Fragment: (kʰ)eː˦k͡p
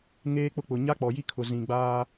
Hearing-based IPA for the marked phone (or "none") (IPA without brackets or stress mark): ŋ